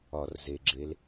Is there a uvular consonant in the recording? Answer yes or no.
no